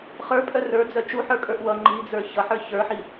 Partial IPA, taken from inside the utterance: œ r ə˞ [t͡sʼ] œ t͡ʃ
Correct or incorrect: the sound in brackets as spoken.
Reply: incorrect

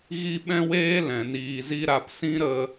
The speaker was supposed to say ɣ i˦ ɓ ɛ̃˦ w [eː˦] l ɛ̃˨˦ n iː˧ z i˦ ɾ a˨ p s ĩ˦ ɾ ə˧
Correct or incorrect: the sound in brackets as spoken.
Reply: correct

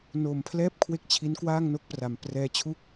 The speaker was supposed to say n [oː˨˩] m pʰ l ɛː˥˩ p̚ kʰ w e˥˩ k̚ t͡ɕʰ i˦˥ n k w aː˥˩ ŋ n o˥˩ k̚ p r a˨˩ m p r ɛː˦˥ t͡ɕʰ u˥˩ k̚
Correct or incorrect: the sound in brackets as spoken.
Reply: incorrect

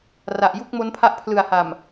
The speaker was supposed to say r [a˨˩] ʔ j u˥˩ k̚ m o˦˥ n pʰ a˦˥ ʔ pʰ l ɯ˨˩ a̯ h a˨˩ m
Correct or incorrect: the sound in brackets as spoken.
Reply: correct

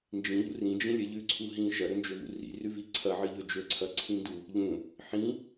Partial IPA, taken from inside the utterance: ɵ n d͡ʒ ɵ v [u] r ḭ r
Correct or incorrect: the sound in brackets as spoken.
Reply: incorrect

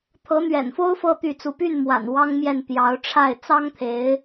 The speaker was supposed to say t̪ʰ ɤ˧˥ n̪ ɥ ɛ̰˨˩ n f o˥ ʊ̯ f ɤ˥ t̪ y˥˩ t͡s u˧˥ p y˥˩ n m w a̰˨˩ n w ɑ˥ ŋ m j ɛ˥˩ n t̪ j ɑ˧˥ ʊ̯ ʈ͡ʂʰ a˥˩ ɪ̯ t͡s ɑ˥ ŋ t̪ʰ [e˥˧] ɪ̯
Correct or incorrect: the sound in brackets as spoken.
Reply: incorrect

